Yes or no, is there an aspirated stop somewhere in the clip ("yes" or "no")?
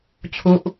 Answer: yes